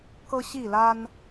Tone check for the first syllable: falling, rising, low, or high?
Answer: high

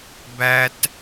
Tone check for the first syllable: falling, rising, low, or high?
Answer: high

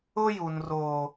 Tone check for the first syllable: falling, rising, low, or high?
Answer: high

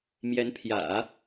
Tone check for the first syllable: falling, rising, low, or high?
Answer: rising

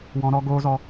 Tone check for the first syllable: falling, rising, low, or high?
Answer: high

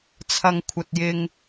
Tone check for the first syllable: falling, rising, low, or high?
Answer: low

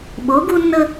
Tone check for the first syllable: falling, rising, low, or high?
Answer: rising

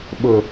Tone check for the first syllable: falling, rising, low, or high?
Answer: low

